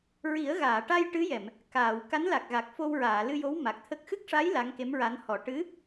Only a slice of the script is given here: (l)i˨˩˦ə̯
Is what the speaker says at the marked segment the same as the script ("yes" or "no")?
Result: no